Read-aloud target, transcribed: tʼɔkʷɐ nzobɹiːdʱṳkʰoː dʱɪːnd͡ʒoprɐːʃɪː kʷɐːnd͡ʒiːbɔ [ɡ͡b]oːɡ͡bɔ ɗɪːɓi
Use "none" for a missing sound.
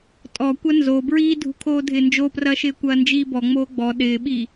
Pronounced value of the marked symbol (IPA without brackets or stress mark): ŋ͡m